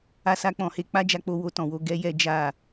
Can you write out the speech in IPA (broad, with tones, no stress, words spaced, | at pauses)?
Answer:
a˧sa˧k͡pɔ̃˨he˧ k͡pa˦d͡ʒa˦˨k͡po˧ wo˧tɔ̃˨wo˧ ɡɛ˦jɛ˦ d͡ʒa˦˨